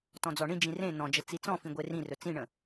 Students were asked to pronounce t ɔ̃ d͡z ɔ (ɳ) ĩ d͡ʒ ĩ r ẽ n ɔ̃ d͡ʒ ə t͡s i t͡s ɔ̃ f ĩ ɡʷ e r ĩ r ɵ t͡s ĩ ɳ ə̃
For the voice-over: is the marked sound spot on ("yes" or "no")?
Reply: yes